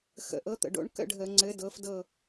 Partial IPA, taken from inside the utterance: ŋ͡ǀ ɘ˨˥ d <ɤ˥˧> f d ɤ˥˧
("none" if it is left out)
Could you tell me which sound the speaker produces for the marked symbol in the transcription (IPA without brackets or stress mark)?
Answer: ɤ˨˥